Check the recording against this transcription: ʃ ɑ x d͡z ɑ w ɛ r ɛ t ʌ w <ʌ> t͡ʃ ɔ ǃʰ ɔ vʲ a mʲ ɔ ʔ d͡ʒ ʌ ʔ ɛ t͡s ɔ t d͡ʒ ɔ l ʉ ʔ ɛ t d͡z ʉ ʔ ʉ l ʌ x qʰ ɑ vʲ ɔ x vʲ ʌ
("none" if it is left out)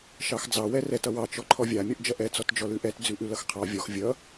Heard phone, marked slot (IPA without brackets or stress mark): ɑ